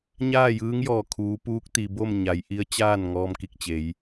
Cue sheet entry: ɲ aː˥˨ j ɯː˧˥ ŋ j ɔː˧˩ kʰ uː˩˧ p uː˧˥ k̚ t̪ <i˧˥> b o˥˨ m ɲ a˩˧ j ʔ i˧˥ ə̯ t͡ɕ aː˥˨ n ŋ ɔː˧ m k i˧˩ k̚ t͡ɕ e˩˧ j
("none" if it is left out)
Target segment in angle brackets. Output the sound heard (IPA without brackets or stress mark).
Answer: i˩